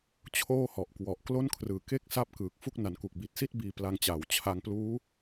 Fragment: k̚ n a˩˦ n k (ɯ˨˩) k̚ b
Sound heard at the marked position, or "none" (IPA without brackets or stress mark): u˨˩